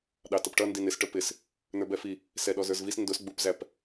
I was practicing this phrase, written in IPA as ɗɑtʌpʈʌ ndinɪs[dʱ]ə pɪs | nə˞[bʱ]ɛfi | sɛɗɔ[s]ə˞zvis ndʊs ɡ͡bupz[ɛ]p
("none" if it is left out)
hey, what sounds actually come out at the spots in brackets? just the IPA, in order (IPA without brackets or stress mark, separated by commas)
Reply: ʈ, b, z, æ